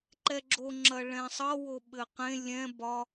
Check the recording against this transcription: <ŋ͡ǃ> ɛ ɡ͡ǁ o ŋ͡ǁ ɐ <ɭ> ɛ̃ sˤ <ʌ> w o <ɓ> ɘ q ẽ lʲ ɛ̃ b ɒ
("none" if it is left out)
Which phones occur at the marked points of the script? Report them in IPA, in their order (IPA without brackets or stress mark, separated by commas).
ǃ, ɭ, ʌ, ɓ